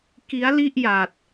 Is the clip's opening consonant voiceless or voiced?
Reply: voiceless